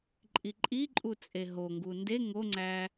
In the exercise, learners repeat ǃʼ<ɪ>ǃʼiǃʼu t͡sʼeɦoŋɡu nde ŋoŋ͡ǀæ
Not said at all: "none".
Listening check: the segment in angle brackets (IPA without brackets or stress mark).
i